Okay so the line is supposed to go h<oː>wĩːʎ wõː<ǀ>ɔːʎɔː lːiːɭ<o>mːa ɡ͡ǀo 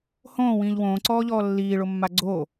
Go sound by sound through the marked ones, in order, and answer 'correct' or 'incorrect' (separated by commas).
incorrect, correct, correct